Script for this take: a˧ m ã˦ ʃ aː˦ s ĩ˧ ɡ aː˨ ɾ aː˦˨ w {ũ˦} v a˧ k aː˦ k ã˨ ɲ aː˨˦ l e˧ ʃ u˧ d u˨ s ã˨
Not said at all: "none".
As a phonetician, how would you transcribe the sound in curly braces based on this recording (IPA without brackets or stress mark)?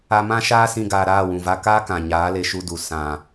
ũ˨